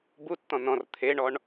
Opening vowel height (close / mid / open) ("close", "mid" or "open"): close